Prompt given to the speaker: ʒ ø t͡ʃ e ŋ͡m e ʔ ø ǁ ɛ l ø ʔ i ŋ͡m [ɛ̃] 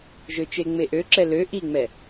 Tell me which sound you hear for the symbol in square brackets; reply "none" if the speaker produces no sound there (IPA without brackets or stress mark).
ɛ